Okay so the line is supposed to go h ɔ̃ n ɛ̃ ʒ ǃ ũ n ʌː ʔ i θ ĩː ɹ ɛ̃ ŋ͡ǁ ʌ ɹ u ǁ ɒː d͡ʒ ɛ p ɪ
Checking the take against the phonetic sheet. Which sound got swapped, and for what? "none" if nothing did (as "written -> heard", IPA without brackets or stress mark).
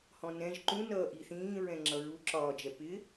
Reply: none